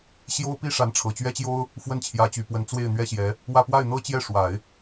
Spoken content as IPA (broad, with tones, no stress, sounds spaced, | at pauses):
ɕ j o˥ ʊ̯ p i˥ ʂ a˧˥ n ʈ͡ʂʰ ɤ˨˩ t͡ɕ ɥ ɛ˥ t͡ɕ j o˥ ʊ̯ | f w ə˥˩ n t͡ɕʰ j ä˧˥ t͡ɕ y˨˩ p w ə˧˥ n t͡s w e˥˩ ɪ̯ n̪ ɥ ɛ˥ ɕ j ɛ˧˥ | w ä˥˧ p w a˥˩ ɪ̯ n̪ ɤ˥ t͡ɕ j ɛ˥˩ ʂ w a˨˩˦ ɪ̯